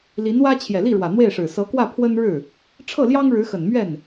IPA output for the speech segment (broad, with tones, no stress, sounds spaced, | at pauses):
l i˧˥ n w ä˥ t͡ɕʰ j ɛ˨˩ l i˥˩ ɻ w ä˨˩ n̪ w e˥˩ ɪ̯ ʂ ɻ̩˨˩ s ɤ˧˥ k w ä˥˩ pʰ w ə˥ n ɻ ɻ̩˥˩ | ʈ͡ʂʰ ɤ˥˩ l j ɑ˥ ŋ ɻ ɻ̩˧˥ x ə˨˩ n m ɥ ɛ˥˩ n